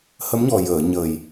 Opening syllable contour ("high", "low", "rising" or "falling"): rising